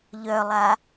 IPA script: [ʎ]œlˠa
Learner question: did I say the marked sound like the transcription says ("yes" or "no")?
yes